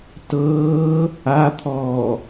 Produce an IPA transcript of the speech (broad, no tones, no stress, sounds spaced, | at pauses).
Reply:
t ɤː | a t̪ʰ ɔː